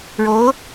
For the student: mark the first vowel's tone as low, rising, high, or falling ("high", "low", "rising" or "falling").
rising